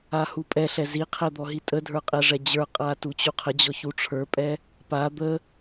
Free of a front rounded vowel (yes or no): yes